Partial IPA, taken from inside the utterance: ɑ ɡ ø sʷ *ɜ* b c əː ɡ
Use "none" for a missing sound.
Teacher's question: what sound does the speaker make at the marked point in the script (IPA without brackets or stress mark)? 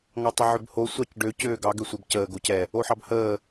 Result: ɜ